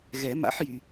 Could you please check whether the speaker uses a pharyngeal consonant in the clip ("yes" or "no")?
yes